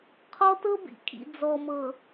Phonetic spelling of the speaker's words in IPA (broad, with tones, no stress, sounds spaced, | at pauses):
qʰ ɔ˦ t ɤ˦ b ḭ˨ kʰ ḭ˨ d͡z ɔ˨ m ɤ˨